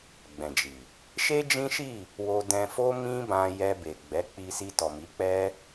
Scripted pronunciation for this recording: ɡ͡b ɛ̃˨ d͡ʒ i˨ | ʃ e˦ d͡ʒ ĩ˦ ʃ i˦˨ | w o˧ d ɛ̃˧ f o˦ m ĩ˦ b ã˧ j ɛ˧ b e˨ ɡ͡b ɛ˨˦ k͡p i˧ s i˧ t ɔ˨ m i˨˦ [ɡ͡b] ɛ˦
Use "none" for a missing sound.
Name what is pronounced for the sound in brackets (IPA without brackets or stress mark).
k͡p